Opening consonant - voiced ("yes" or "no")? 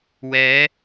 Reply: yes